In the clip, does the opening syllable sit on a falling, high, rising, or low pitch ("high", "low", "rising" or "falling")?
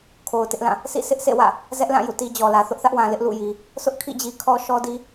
low